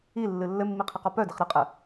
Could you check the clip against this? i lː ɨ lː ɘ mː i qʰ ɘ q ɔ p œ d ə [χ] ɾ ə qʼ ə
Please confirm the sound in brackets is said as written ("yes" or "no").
yes